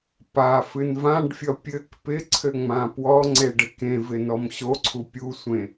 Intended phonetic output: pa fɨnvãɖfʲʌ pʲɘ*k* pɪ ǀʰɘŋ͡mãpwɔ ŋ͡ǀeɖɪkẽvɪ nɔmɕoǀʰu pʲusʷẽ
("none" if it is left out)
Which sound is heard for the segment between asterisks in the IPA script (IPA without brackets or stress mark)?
k